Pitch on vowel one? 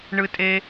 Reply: high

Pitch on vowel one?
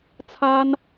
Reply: high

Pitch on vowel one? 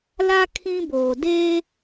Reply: high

